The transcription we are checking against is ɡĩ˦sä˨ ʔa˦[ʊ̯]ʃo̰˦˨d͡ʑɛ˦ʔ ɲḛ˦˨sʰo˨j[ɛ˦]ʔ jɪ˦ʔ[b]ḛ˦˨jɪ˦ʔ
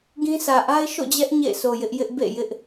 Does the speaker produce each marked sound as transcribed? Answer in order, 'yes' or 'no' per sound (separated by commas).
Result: no, no, yes